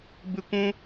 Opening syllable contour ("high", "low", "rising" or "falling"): high